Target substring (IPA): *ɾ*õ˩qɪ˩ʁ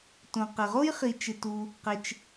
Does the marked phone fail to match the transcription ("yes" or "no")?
yes